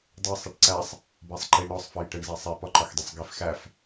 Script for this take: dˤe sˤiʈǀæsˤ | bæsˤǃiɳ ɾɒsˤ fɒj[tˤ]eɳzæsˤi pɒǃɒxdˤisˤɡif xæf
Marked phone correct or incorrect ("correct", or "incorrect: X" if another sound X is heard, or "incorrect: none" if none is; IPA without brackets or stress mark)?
incorrect: ʈ